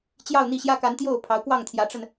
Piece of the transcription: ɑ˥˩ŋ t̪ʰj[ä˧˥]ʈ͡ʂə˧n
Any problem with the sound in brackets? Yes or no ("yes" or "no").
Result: no